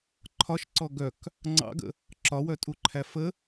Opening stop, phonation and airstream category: click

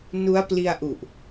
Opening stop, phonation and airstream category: plain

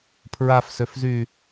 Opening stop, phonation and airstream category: aspirated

